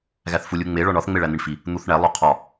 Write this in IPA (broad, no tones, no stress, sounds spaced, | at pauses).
ɣ æ θ f u lʲ u ŋ͡m e ɭ ɒ ɳ ɒ θ ŋ͡m e ɭ æ n̪ i ɳ f i | n̪ u θ ɳ æ lˠ o qʰ ɒ